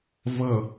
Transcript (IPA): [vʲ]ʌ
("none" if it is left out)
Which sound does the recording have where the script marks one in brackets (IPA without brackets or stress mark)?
v